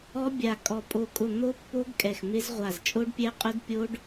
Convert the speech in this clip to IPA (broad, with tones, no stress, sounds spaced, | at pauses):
ɔ˦˥ bʲ a˧˩ kʼ ɔ˧˩ pʼ o˧˩ kʼ ʊ˧˩ n̪ o˦˥ pː o˦˥ ɡ kʼ ɛ˧˩ x m ɪ˦˥ z ʁʷ a˧˩ z t͡ʃʼ o˦˥ ɖ pʲ ɛ˦˥ qʼ ʊ˦˥ d pʲ o˦˥ ɖ